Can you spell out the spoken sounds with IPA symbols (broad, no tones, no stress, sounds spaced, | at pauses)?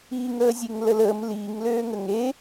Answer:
i ŋ əː zʲ e ŋ l ə l əː m l iː ŋ l øː ŋ ə ŋ e